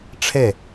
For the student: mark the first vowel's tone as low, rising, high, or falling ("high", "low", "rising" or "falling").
falling